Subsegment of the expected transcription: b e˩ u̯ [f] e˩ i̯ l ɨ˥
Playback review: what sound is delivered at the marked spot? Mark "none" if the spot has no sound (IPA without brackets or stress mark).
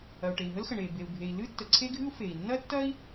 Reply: bʱ